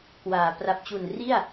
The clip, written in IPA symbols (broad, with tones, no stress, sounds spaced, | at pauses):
k w aː˩˦ p r a˨˩ p̚ t͡ɕ u˨˩ n r i˥˩ a̯